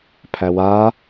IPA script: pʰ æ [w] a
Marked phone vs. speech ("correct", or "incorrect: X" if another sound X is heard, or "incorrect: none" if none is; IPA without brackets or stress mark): correct